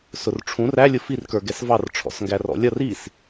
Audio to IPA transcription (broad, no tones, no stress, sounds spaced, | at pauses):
s ʊ r ʈ͡ʂʰ ũ r æ lʲ ʊ f i r k ə˞ ɡ ɛ s v ɑ r ʈ͡ʂʰ ɔ̰ s ŋ ɡ æ r ɔ̰ lʲ ʌ r i s